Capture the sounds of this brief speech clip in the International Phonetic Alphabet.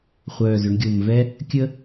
χʷœː˨˩zʏ˩˧ɳɡʲo˨˩mvɛ˥ | kʲə˥

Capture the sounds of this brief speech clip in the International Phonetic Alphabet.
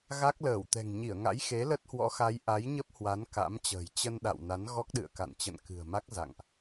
ɣa˦˥k̚ləː˧˩wt̪ɛ̤˨˩ŋ ɲi˧˩ə̯ŋa̰˧˥jxe˨˦ lə˦˥t̚hwɔ̰˧˥xa˨˦j ʔa˨˦jɲə˦˥p̚ hwa˨˦nka̰˧˥mt͡ɕə̤ː˨˩j t͡ɕə˧nɗa̰˧˨w na˨˦nɣɔ˦˥k̚ɗɨ̰˧˨ə̯ka̰˧˨n t͡ɕə̰˧˨nkɨ̤˨˩ə̯ma˦˥k̚ za̰˧˨ŋʔ

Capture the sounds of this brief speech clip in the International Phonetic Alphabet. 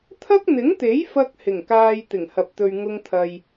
t̪ʰɐ˥k̚n̪ɪ˨˥ŋt̪e˨˥j fɐ˥k̚hɪ˨˩ŋkaː˧j t̪ɪ˨˩ŋhɐ˨p̚t̪ɵ˨ɥ ŋʊ˧ŋt̪ʰɐ˨j

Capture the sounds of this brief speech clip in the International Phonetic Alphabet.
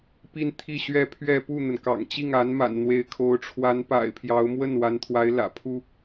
pi˥nt̪ʰi˥˧ɕɥɛ˥˧pʰɥɛ˥˧ pu˥˩n̪ə˩nkɑ̰˨˩ŋt͡ɕi˥˩ŋ a˧˥nma̰˨˩nn̪we˧˥ɪ̯ kʰo˧˥ʊ̯ ʈ͡ʂʰwa˧˥npa̰˨˩ɪ̯ pʰjɑ˧˥ʊ̯mwə˥˩nwa˧˥nt̪ʰwa˧˥ɪ̯ lä̰˨˩pʰu˥

